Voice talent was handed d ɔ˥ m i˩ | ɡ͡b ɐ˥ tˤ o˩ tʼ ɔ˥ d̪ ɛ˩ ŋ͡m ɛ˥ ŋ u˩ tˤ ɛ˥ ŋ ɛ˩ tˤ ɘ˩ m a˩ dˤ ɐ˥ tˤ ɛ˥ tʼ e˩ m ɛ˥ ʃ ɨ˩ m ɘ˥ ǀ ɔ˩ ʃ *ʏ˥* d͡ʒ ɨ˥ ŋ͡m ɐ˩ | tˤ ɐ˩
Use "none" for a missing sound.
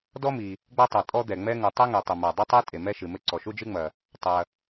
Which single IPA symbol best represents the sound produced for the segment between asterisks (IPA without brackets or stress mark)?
u˥